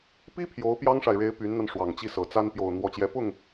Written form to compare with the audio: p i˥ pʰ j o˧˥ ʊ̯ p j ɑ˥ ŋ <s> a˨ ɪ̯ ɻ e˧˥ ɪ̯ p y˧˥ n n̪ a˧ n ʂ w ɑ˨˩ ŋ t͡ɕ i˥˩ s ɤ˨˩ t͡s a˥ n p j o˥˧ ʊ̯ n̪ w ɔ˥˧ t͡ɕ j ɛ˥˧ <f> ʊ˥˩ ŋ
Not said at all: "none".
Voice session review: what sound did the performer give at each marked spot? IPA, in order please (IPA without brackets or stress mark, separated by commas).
ʂ, p